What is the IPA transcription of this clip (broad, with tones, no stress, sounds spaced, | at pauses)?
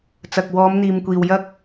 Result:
t͡s ɐ˨ k̚ w ɔː˨˧ m n̪ iː˨ m kʷ iː˨ w j ɐ˨ k̚